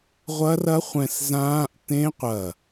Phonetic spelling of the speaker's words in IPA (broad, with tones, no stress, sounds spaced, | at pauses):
ʁʷ ɐ˦˥ r ɐ˦˥ χʷ ɛ̃˧˩ s z ãː˦˥ ʔ t ẽ˦˥ qʷ ɐ˧˩